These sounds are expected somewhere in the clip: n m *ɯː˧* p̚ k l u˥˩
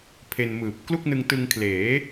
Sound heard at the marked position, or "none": ɯː˨˩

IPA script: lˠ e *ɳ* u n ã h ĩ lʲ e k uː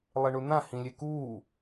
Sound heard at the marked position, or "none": ɳ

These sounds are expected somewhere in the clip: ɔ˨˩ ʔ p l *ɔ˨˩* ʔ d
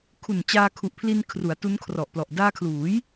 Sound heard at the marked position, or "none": ɔ˨˩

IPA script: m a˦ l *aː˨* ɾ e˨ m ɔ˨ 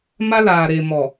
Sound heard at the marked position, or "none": aː˨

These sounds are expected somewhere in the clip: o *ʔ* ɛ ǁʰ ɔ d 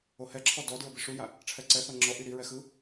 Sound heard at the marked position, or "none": h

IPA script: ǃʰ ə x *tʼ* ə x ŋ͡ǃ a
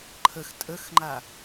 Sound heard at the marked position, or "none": tʼ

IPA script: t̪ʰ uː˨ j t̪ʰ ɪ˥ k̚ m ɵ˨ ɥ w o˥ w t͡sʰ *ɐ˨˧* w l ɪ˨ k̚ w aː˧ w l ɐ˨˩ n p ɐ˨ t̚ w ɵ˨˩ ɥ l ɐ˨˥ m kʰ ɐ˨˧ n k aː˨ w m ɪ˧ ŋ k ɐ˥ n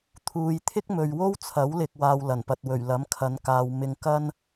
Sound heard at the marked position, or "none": ɐ˨˥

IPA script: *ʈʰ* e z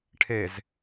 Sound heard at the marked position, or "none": ʈʰ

